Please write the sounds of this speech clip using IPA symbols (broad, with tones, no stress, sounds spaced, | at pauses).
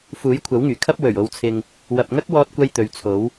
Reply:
f uː˨˥ j kʷʰ ɐ˨˥ w ŋ yː˨˩ kʰ ɐ˥ p̚ w ɵ˨˩ ɥ o˨ w t͡sʰ ɪ˨ ŋ | w ɐ˨ p̚ ŋ ɐ˥ k̚ w ɔː˧ t̚ kʷ ɐ˧ j t̪ ɵ˨ ɥ t͡sʰ o˨˥ w